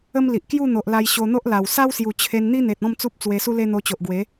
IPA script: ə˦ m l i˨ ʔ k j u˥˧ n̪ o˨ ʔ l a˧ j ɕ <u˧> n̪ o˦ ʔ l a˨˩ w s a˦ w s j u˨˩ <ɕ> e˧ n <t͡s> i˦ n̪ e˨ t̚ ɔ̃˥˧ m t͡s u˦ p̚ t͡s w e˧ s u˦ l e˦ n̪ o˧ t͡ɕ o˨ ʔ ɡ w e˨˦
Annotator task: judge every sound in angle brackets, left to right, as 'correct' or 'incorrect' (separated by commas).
incorrect, incorrect, incorrect